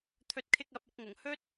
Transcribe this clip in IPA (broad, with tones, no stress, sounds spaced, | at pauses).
t̪ʰ ɵ˨˥ t̚ kʰ ɪ˧ k̚ ɐ˨˥ p̚ ɐ˧ k̚ ŋ ʊ˨˩ ŋ h ɵ˥ t̚